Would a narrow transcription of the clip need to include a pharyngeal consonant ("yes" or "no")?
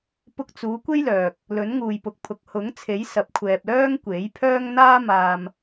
no